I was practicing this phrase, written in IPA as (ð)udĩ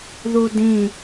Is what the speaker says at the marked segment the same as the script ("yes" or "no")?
yes